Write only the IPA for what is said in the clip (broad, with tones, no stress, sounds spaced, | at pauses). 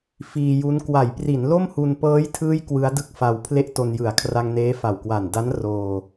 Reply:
f iː˧ j u˦˥ n k w a˩˦ j p r i˩˦ n l o˥˩ m h u˧ n p ɤː˦˥ j tʰ ɯː˦˥ j k w ɯ˦˥ a̯ d ɯ˥˩ k̚ f a˧ w pʰ l e˥˩ ʔ t o˧ n j ɯ˩˦ a̯ kʰ r a˧ ŋ n eː˦˥ f a˨˩ w k w a˨˩ n d a˦˥ n r oː˧